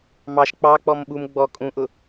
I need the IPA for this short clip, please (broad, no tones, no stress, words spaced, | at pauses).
mɑʃ k͡pɑk͡pɔm ɓum ɡ͡bɔ kʼũʔʊ